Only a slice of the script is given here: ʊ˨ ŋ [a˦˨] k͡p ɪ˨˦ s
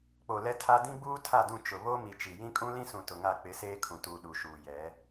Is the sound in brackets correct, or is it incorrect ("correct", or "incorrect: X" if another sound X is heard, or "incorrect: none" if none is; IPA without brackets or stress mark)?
correct